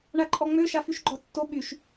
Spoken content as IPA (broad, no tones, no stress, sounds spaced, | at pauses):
ɳ a ǃʼ ɔ ŋ͡m ø ʃ a f y ʃ ɡ͡ǃ ɔ tː o ɓ y ʃ